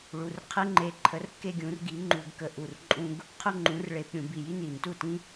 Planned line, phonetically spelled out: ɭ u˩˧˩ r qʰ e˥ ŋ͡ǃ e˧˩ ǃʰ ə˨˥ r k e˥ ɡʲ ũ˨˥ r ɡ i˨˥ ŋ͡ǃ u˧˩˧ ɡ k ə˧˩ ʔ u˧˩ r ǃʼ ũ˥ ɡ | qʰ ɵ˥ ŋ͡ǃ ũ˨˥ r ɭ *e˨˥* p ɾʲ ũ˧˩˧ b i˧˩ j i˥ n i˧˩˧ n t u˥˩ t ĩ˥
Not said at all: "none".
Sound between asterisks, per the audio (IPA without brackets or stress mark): e˧˩˧